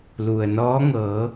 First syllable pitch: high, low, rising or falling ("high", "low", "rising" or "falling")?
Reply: low